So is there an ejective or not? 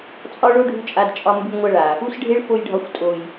yes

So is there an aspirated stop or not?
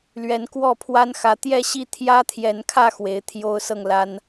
yes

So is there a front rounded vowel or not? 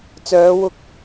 yes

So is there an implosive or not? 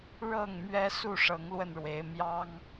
no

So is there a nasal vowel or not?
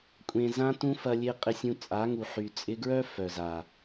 yes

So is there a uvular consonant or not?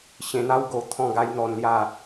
no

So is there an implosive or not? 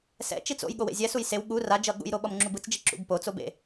yes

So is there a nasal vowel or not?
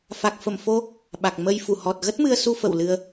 no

